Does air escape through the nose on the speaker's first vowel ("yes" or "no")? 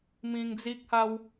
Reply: yes